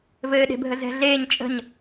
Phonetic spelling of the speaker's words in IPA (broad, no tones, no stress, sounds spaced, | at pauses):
v ɘː ɗ e̤ bʱ ə z ɛ̤ ɮ eː ɲ t͡ʃʼ ə̤ ɲ